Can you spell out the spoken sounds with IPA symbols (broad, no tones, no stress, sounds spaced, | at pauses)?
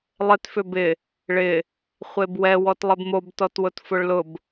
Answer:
lˠ ɪ t f ʏ b ɪ | ɭ ɪ | χʷ e b w ɛ w ɔ t lˠ ɪ b m o b t ɔ t w ʊ t f ʊ ɭ l ʊ b